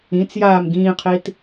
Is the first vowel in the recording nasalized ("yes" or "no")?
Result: yes